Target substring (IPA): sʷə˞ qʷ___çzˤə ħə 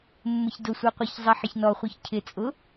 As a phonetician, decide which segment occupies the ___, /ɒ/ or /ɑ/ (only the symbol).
ɑ